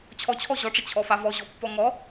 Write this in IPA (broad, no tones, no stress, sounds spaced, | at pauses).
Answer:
t͡ɕʰ ɔ t͡ɕʰ ɔ ʑ ɔ ʈ͡ʂ ə t͡ɕʰ ɔ f a v ɔ ʑ ɔ pː ɔ ŋ ɔ